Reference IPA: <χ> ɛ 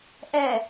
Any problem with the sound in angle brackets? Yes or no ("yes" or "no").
yes